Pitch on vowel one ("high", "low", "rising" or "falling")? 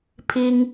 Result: high